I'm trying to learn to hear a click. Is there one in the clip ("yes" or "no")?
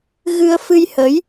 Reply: no